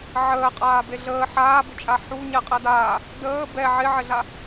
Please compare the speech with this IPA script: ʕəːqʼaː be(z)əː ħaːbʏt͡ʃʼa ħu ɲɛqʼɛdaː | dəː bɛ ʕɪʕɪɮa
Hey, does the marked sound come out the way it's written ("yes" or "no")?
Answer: no